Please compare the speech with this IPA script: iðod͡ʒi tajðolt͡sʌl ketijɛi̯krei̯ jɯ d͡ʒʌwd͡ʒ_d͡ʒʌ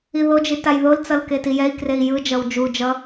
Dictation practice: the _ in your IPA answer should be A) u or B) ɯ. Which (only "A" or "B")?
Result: A